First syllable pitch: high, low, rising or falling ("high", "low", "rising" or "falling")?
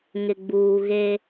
low